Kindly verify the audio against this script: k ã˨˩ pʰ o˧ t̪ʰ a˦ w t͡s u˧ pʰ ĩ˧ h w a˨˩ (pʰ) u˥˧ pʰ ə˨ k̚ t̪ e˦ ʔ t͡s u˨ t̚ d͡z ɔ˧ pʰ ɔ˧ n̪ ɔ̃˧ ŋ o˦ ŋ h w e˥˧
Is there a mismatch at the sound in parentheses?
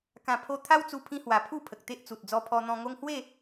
no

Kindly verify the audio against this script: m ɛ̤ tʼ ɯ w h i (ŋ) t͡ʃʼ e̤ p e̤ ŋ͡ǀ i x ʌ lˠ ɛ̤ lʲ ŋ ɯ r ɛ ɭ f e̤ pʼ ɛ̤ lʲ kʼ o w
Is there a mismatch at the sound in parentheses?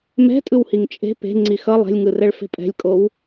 no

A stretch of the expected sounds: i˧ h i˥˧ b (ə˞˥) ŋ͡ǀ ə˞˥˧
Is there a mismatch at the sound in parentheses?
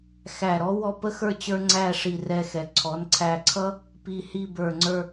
yes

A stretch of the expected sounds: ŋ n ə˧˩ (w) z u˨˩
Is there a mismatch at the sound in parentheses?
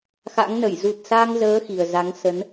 yes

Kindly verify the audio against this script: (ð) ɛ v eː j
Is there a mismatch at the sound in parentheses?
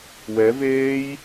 yes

